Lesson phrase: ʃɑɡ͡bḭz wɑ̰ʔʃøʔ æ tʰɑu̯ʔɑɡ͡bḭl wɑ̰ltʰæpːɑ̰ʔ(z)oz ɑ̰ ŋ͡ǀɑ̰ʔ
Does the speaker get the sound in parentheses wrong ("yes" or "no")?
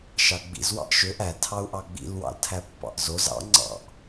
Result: no